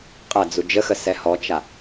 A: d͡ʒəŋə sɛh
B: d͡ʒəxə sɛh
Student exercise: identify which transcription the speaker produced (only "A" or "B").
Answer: B